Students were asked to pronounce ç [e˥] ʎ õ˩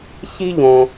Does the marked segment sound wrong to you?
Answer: yes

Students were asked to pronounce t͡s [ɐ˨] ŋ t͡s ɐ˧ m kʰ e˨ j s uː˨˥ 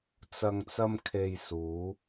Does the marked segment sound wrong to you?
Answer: no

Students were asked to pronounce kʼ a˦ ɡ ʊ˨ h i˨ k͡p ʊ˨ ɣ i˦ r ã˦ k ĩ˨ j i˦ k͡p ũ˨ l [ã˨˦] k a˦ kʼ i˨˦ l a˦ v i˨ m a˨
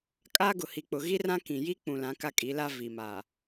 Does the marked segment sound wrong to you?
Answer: no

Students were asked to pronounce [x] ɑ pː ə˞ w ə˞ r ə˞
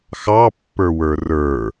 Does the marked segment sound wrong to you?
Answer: no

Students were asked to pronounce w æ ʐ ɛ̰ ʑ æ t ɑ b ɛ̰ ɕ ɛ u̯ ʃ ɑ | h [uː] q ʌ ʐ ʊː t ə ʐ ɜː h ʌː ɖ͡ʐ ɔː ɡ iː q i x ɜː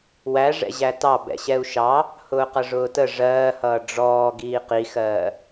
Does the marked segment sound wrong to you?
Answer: yes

